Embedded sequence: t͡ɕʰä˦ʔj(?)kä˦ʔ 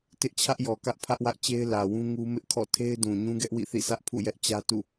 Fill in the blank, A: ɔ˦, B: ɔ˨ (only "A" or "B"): B